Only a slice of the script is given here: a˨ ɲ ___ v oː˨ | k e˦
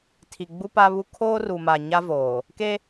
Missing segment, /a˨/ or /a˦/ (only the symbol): a˦